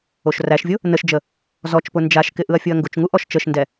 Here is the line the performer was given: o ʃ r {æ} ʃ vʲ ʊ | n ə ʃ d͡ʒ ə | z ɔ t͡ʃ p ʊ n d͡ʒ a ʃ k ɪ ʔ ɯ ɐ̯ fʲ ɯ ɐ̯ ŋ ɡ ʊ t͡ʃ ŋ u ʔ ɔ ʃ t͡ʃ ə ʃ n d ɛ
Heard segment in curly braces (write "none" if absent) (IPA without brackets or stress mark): æ